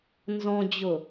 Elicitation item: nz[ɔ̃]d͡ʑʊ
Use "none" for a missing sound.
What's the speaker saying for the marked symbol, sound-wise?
ɔ̃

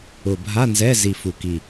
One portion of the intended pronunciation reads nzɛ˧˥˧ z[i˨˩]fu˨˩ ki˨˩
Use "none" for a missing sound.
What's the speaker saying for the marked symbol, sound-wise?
i˨˩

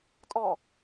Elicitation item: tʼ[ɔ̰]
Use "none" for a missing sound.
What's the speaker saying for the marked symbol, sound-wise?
ɔ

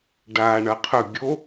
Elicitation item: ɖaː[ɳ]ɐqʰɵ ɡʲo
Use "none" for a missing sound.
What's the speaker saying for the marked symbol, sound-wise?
ɳ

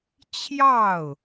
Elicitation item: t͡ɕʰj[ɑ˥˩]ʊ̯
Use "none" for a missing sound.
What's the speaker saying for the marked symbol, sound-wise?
ɑ˥˩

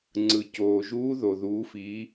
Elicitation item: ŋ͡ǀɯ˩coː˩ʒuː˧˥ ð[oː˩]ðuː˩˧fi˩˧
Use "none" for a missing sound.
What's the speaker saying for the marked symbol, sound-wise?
o˩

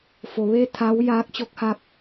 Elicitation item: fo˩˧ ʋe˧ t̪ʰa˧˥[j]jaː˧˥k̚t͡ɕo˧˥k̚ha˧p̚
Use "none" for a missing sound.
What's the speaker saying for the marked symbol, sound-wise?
w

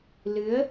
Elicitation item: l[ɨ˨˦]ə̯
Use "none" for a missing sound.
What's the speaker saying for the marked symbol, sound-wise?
ɨ˨˦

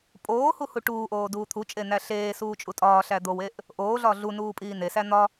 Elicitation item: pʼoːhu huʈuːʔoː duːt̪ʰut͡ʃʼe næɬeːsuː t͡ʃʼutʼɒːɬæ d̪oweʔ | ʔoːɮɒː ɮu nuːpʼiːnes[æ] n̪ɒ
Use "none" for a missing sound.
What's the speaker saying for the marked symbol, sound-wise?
æ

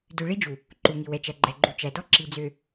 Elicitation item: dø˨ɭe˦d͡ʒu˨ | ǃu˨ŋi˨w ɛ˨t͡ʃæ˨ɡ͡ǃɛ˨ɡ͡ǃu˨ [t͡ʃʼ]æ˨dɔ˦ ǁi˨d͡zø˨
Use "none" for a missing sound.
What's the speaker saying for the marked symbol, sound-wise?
t͡ʃ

